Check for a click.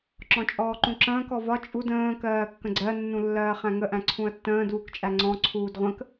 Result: present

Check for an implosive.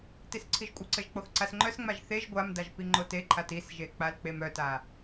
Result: absent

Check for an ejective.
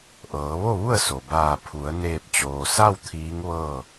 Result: absent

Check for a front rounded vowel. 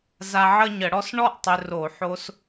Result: present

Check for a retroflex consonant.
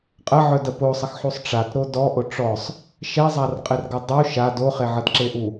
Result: present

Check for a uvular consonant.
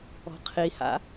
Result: present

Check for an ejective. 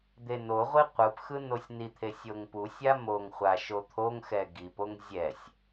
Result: absent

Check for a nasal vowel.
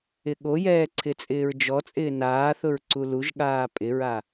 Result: absent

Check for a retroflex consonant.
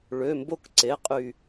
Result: present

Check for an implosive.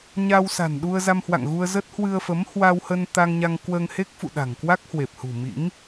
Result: present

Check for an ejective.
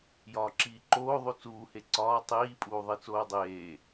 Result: present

